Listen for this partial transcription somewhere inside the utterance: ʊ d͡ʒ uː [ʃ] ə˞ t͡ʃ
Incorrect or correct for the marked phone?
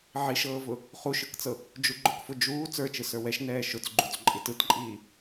incorrect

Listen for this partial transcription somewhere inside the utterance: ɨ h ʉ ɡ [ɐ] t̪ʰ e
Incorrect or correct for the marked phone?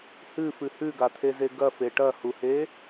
incorrect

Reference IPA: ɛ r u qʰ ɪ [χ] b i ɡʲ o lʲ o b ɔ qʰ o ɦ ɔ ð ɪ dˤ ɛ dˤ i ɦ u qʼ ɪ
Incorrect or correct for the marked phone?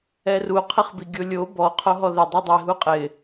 correct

